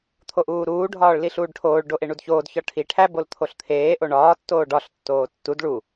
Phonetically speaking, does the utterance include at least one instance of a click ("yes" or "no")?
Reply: no